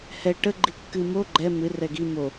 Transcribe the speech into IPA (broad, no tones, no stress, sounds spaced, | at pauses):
h ɛ ʈ ə ɡ͡ǃ i kː ɨ m o ɡ͡ǃ ɛ m ɨ r ɛ ɡ i m o